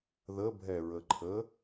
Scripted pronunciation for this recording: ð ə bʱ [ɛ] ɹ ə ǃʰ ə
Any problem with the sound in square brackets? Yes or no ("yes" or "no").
no